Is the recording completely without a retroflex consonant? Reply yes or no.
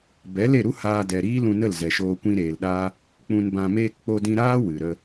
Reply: yes